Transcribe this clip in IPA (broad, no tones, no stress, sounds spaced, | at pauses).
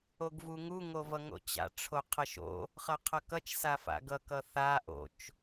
o ɡ v u ŋ u ŋ o v ʌ ŋ o̰ t͡ɕ a̰ ʈ͡ʂʰ o qʰ ʌ ʃ o̰ | χ ʌ qʰ ʌ k ʌ t͡ʃ s a f a̰ ɡ ʌ k ʌ θ a ʔ o̰ t͡ʃ